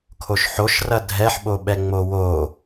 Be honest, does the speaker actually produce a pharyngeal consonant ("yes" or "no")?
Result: yes